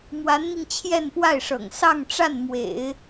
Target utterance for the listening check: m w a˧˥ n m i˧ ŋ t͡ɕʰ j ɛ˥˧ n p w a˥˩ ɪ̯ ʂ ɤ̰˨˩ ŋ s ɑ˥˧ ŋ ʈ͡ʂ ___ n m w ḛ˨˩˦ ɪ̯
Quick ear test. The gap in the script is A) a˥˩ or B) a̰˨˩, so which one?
A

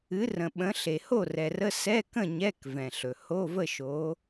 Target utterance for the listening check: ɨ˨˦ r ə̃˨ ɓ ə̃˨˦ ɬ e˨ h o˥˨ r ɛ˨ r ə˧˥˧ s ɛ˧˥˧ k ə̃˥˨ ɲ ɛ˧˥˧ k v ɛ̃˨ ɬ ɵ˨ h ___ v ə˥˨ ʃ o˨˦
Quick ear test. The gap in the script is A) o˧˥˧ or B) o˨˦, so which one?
A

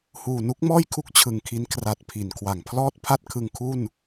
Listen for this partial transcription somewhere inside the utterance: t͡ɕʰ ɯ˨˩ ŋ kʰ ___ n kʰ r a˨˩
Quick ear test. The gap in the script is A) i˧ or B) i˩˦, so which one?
A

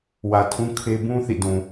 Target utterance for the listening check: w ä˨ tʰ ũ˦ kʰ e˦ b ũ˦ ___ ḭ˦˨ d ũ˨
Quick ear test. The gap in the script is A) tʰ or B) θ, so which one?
B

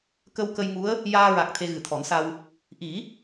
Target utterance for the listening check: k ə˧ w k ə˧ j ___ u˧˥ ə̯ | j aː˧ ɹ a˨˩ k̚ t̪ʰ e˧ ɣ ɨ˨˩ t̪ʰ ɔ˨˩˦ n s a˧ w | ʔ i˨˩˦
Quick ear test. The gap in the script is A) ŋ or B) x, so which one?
A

